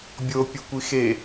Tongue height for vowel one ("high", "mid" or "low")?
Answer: mid